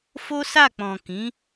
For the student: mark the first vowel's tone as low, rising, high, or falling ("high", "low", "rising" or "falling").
high